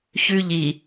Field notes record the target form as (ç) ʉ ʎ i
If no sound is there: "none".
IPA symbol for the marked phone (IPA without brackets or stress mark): ç